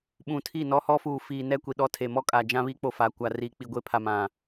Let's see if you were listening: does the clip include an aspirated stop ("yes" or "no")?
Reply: yes